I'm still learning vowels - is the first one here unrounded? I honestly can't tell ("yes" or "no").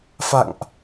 yes